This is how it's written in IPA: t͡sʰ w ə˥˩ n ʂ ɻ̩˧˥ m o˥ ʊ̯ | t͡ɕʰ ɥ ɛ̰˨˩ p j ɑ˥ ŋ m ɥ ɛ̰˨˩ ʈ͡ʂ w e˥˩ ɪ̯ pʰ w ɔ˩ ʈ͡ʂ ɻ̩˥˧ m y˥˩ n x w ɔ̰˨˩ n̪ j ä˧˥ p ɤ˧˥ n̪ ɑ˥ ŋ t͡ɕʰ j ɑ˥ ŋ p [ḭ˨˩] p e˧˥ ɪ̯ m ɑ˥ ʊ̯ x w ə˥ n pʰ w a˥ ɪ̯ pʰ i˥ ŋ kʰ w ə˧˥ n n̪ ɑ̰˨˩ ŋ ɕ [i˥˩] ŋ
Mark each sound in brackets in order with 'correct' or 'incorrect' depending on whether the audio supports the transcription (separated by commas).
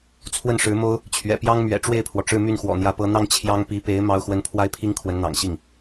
incorrect, correct